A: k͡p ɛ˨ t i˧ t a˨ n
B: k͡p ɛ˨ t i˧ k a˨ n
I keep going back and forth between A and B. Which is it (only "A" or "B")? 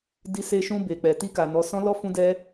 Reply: B